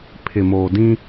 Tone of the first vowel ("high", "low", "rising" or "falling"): low